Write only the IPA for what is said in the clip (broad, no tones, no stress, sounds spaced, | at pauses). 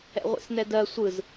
ɛ̰ ʁʷ ḛ s n ɛ d ɜ sʷ ɯ z